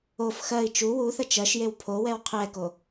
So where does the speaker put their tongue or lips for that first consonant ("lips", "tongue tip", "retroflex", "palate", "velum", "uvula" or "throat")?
lips